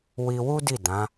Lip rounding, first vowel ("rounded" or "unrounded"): unrounded